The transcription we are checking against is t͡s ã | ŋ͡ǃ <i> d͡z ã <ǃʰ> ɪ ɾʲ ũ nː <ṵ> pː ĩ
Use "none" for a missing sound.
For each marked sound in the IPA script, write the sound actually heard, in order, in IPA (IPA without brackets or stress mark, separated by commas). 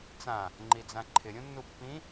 i, ǃʰ, u